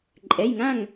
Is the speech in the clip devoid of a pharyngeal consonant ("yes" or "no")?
yes